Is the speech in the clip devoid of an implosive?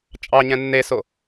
yes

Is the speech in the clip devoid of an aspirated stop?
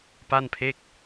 no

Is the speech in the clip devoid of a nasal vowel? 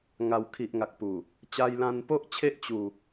no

